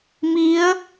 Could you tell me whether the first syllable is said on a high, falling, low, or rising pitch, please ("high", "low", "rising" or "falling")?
rising